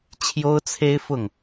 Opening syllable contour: high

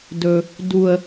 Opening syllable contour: low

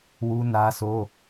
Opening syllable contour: high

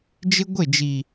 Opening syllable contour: high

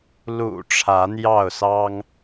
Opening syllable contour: low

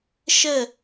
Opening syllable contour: falling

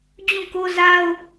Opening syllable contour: falling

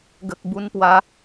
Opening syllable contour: low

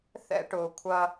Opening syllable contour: high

